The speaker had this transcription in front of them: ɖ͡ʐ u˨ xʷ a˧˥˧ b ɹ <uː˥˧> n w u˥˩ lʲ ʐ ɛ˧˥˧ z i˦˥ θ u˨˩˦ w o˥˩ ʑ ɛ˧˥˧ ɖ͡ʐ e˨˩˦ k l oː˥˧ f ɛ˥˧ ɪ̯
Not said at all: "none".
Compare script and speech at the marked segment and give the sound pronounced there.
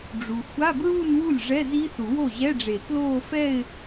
uː˥˧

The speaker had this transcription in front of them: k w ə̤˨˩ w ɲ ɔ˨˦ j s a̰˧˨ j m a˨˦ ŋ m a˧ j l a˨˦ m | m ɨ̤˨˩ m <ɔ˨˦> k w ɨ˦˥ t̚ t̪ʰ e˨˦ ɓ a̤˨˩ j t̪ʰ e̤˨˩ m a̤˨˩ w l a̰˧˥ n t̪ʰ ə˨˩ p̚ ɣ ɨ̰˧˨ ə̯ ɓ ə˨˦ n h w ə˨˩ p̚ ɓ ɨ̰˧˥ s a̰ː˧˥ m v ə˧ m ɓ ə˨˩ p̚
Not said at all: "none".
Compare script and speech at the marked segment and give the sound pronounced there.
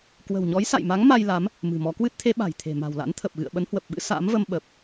ɔ˨˦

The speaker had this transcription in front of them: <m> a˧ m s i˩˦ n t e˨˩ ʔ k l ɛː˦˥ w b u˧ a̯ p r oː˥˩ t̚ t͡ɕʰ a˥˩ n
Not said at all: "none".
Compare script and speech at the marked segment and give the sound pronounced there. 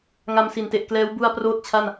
ŋ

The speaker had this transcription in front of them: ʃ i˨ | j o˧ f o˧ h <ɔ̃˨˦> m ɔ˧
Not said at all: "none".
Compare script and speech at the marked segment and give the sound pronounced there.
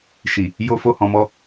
ɔ̃˨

